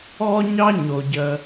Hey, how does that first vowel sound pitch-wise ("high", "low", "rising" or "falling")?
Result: high